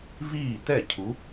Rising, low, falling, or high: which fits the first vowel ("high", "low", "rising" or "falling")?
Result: falling